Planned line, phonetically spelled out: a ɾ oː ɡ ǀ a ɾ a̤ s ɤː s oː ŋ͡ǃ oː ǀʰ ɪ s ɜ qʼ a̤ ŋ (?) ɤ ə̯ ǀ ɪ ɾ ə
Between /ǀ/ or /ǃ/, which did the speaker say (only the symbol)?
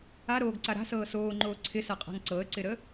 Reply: ǀ